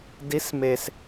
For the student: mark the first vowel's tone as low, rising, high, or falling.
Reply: rising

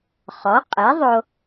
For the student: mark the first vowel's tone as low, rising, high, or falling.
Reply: rising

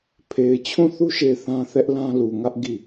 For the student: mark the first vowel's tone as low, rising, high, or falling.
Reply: low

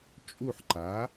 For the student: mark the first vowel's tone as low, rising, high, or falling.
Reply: falling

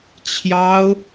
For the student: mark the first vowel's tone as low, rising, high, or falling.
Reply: high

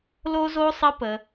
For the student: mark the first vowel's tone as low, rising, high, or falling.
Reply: high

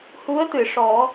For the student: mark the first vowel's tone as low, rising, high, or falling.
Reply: rising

